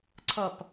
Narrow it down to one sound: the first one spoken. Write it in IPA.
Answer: ǀʰ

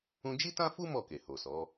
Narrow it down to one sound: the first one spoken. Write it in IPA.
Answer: ũ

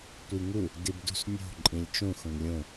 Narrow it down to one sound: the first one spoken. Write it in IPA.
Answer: tʷ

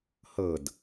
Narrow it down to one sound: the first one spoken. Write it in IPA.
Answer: h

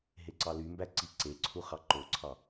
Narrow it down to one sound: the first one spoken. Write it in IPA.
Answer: ɦ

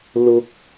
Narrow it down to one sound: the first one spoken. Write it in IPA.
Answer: l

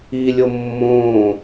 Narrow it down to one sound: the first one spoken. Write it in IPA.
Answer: i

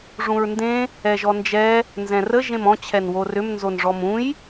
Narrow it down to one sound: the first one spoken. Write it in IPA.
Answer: ʐ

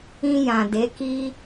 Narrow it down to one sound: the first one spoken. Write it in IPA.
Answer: ĩ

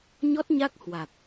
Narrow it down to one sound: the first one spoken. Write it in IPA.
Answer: ɲ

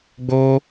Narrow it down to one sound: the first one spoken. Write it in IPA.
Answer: ɡ͡b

